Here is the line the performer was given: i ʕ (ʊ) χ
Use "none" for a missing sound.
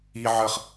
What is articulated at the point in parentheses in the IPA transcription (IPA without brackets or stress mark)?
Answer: ə